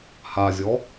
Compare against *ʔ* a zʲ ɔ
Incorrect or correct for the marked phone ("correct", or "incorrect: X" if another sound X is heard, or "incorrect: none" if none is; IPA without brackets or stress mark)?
incorrect: h